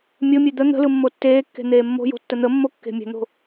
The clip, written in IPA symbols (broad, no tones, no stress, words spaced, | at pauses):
mʲomʲe d̪ə n̪ə̤lɯ mːotːeːkːe̤ n̪eːmːo̤jo̤ tːən̪əmːo kːe̤mʲə̤n̪o̤